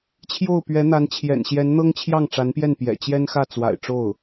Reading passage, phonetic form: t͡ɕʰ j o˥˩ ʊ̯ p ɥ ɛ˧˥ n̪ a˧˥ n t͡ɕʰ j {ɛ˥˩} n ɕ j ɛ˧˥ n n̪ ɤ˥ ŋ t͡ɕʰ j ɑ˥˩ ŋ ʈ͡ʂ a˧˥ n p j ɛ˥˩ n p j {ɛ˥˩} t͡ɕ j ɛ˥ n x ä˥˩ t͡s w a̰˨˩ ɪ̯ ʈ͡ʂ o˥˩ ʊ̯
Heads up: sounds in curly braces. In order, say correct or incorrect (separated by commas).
incorrect, incorrect